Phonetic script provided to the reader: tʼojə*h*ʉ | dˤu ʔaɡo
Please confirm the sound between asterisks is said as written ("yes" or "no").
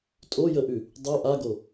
no